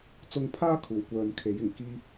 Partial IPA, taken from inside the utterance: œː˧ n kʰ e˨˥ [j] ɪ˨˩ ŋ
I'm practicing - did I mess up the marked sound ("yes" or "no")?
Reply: no